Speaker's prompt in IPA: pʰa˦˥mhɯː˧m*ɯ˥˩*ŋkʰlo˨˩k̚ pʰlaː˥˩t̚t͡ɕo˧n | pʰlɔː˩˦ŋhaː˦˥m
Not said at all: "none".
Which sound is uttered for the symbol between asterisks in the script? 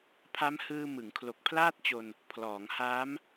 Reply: ɯ˩˦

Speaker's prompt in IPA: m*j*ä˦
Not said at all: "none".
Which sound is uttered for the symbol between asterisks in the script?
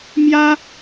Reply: j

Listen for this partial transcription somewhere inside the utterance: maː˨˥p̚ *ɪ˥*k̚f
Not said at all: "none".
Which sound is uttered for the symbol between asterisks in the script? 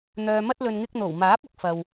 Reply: ɪ˥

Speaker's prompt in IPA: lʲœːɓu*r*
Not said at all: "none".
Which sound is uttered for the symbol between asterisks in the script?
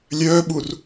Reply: r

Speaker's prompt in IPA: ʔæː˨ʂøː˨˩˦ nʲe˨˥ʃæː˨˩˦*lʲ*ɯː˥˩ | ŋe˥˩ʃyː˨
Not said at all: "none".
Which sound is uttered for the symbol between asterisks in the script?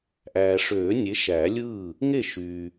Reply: lʲ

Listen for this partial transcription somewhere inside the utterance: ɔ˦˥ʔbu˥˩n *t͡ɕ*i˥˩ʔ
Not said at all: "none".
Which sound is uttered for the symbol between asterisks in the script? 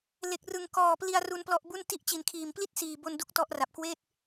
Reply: t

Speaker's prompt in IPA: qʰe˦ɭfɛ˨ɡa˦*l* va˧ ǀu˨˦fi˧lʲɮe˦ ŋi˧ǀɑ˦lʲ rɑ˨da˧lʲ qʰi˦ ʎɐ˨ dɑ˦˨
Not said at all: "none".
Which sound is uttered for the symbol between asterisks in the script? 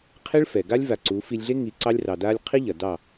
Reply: lʲ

